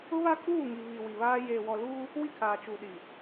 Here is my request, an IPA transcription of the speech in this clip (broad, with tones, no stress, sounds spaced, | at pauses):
ʊ˦ β a˦ kʼ uː˦˨ ŋ i˨ β i˨ w i˨ β aː˦ j e˨ w ɔ˨ l uː˦ | w i˦ kʰ aː˨ t͡ʃ u˨ ɗ i˨